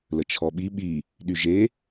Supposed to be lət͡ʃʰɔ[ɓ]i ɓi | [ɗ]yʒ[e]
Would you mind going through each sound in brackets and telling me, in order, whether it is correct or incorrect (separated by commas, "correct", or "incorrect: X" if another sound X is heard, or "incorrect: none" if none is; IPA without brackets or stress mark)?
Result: correct, correct, correct